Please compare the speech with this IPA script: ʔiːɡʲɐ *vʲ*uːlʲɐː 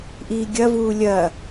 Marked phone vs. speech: incorrect: v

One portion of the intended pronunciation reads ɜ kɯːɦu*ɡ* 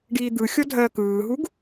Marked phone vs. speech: correct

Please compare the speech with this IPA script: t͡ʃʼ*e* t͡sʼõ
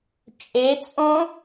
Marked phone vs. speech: correct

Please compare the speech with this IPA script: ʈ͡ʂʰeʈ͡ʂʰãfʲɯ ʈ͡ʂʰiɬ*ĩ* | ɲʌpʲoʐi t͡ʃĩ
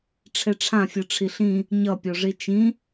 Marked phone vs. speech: correct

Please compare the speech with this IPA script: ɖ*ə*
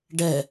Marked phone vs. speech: incorrect: ɛ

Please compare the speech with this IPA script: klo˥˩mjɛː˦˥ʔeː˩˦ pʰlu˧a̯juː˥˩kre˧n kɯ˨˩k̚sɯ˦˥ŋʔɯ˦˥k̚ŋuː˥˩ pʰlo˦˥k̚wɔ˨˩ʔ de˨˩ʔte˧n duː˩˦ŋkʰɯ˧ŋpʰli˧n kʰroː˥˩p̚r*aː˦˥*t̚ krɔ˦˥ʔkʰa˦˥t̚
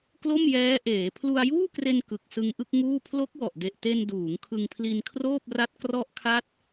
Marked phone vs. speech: incorrect: a˦˥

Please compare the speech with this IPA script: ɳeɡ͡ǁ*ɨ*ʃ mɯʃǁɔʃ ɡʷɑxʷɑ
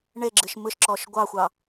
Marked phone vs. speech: correct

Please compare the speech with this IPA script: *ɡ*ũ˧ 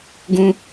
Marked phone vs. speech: correct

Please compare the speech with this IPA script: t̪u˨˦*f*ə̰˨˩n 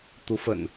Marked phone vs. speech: correct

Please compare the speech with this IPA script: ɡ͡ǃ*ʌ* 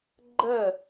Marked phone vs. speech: incorrect: ə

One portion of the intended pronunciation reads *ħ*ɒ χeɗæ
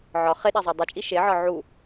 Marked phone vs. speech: incorrect: ʕ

